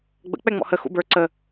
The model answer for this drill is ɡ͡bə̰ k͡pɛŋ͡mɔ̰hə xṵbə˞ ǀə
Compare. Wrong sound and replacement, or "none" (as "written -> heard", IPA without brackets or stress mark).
none